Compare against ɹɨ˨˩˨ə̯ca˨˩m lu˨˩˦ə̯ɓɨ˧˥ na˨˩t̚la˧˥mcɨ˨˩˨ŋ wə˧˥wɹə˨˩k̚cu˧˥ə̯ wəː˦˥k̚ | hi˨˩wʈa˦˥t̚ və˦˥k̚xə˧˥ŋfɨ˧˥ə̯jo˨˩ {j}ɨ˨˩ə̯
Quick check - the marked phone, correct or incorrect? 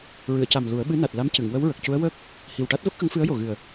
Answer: incorrect